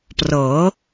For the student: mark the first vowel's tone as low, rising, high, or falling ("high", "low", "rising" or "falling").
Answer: rising